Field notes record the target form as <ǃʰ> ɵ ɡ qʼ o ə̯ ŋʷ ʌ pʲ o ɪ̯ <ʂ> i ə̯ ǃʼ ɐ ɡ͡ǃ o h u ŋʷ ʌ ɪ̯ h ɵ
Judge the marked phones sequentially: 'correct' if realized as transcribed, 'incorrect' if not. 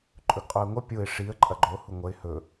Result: incorrect: ǃʼ, correct

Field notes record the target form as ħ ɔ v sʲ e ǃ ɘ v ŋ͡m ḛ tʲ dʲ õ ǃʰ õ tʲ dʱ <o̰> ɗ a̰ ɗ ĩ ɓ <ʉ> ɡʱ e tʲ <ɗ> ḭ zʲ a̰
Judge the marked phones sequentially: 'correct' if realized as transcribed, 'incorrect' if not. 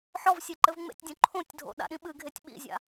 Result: correct, incorrect: ɨ, incorrect: ɓ

